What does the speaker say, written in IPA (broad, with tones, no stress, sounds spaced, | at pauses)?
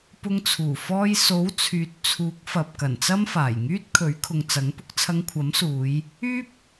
p ʊ˧ ŋ t͡sʰ uː˨˩ f ɔː˧ j s o˨˥ w t͡sʰ yː˨ t̚ t͡sʰ uː˨˥ k̚ f ɐ˨ p̚ k ɐ˨˩ n t͡s ɐ˥ m f aː˨˩ j ŋ yː˥ t̚ kʰ ɵ˨˥ ɥ kʰ ʊ˨ ŋ t͡s ɐ˨˥ ŋ p ʊ˧ k̚ t͡sʰ ɐ˧ ŋ kʷʰ ɐ˨˥ m s uː˨˧ j | yː˥ p̚